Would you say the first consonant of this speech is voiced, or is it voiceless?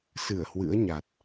voiceless